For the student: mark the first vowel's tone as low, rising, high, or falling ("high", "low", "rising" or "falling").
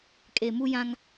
low